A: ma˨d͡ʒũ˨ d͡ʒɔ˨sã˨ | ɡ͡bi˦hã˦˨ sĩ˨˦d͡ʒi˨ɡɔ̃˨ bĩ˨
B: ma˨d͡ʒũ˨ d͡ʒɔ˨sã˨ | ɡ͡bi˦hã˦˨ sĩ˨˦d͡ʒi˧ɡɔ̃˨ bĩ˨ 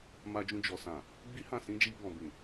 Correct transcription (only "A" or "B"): B